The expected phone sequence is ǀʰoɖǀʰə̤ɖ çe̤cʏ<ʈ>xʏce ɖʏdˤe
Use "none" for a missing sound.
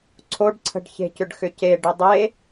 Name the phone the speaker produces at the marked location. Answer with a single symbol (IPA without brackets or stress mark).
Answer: ɖ